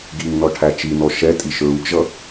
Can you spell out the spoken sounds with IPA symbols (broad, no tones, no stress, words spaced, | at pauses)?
ɡiŋnɔ ʈʰæt͡ʃinɔ ʃɛtʼiʃ ɹuɡʒʌ